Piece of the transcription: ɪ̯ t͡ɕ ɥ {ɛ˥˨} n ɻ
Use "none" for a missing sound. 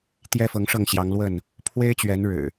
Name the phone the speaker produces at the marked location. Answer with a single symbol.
ɛ˨˦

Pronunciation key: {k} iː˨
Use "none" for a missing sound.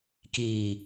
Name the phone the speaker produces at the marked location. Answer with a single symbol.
k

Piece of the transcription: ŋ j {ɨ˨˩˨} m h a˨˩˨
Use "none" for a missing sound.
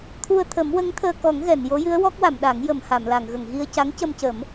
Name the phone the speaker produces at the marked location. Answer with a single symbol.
ə˨˩˨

